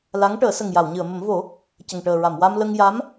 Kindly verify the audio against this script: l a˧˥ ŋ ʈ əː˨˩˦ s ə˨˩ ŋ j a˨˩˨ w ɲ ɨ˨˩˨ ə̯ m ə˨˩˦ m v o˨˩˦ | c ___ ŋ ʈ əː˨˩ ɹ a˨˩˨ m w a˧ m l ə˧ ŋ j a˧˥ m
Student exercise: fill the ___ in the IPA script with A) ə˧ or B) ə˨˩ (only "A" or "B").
B